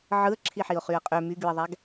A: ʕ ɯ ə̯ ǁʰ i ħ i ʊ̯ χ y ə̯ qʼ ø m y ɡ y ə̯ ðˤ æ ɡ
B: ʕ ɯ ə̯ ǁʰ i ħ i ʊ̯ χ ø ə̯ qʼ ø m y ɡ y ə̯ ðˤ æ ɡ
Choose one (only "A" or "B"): A